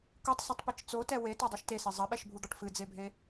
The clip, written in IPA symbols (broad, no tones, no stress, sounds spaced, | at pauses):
k u tˤ s ɨ tˤ p i t͡ʃ t͡s o t ɛ w e t ɔ dˤ o ʃ t e s ɛ zˤ ɐ ɓ ɛ ʃ bʱ u d̪ ɔ ʈ f ɨ d͡z e bʱ e